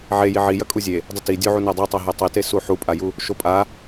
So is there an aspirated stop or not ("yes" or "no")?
no